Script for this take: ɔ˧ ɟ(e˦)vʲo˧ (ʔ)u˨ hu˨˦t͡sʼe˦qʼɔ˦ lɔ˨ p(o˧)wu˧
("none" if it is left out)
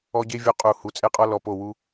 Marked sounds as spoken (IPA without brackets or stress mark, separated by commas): e˦, qʼ, o˦˨